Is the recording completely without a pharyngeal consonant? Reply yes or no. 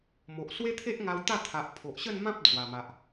yes